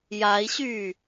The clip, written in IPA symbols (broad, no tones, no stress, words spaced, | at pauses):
jai̯ɕyː